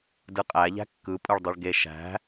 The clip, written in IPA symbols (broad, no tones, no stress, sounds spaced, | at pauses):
d ɯ qʼ æ ʎ æ̤ kː ɯ pʼ ɯ ɭ dˤ ɯ ɭ ɡ e ʃ æ̤